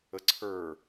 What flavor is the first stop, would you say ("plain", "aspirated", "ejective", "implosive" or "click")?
click